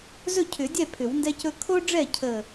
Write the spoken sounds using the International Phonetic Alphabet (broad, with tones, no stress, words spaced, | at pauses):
zɵ˥˨cʰʏ˨˩˦ dʲɛ˥˨ pʰʏ˨˩˦wndɛ˥cɵ˥ kʰo˥ɖ͡ʐɛ˥˨ cʰə˥˨